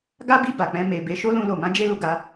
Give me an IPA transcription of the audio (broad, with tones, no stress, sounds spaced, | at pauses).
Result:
ɡ a˦ b i˦˨ b a˨ k͡p ɛ̃˧ m e˨ b e˧ ʃ o˦ l ũ˧ l o˨ m ã˨˦ d͡ʒ e˧ l u˨ ɡ a˨˦